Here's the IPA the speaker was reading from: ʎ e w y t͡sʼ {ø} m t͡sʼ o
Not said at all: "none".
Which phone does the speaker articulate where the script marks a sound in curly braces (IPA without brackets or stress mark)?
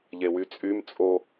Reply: y